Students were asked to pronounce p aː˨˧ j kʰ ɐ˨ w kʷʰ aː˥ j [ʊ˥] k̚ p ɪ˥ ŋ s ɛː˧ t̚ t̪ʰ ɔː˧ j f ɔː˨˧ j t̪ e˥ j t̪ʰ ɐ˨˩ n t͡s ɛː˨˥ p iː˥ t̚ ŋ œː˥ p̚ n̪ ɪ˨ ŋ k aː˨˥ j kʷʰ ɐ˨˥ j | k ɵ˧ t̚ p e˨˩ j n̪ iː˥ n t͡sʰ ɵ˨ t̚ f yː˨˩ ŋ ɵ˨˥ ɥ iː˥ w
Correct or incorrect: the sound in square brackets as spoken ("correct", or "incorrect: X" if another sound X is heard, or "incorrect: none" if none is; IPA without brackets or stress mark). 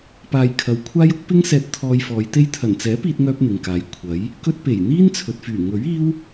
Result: correct